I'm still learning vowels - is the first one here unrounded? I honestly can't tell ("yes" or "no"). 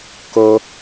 no